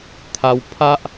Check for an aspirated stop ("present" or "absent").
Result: present